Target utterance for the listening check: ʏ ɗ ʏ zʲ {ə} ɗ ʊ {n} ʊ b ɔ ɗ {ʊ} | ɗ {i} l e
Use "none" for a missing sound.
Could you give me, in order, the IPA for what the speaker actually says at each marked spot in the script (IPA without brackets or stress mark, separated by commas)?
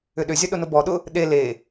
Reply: ɐ, n, ʊ, e